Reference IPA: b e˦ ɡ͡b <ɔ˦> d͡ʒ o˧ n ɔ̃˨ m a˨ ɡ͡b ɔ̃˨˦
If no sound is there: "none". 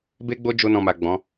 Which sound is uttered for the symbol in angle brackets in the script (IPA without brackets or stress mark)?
o˦